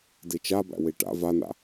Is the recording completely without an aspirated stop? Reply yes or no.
yes